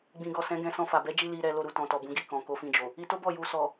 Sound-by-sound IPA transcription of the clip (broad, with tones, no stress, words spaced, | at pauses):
ɡ͡bĩ˨ɡɔ˨ sɛ̃˨˦ɡɛ̃˧sɔ̃˧fa˨ bɛ˨˦d͡ʒi˧ li˧ɾɛ˧ lo˧ɾu˨tɔ̃˨tɔ˨ bũ˨˦ɡi˧kɔ̃˨ ko˧fĩ˧d͡ʒo˨ | i˧to˦bɔ˦˨ ju˨ sɔ˨